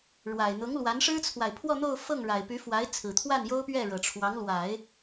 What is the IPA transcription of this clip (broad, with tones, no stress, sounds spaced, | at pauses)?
ɻ w a˨˩ ɪ̯ n̪ ʊ˧˥ ŋ l w a˧˥ n ʂ ɻ̩˥ t͡sʰ w a˨ ɪ̯ pʰ w ɔ˥˧ n̪ o˥˧ ʊ̯ f ɤ˥˩ ŋ ɻ a˨˩ ɪ̯ p y˧˥ f w a˧˥ ɪ̯ t͡sʰ ɹ̩˨˩ t̪ʰ w a˥˩ n j o˥ ʊ̯ p ɥ ɛ˥˩ ɻ ɤ˨˩ ʈ͡ʂʰ w ɑ˧˥ ŋ l w a˨˩˦ ɪ̯